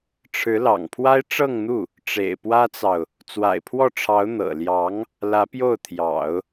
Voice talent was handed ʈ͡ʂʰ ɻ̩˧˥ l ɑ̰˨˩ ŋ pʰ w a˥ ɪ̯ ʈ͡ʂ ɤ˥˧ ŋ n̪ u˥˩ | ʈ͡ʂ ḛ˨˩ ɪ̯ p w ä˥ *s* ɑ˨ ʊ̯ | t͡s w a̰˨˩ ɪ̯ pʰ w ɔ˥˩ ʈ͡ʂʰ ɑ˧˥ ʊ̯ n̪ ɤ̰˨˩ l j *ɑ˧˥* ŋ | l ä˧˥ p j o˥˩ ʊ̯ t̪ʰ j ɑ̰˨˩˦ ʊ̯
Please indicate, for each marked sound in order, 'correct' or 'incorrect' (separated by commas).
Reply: incorrect, correct